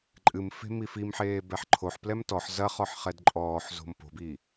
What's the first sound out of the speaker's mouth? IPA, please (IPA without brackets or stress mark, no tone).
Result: ǃʼ